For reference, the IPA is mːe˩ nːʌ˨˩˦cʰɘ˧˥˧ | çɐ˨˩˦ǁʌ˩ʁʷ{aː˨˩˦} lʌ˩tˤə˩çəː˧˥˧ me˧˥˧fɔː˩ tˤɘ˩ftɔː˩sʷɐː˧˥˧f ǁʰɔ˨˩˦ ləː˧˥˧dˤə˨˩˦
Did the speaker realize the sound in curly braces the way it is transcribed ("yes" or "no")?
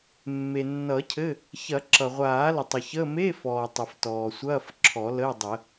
yes